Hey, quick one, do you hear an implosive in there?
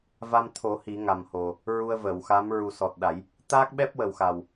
yes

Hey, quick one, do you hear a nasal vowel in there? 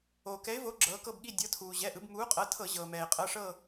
no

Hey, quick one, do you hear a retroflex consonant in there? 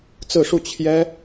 yes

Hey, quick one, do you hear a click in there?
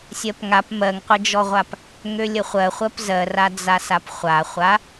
no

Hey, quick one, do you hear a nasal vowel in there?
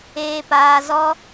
no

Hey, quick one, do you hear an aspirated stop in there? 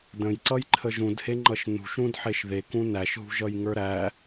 yes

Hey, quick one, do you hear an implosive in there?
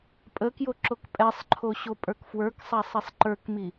no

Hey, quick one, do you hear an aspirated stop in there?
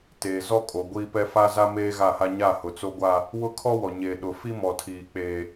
yes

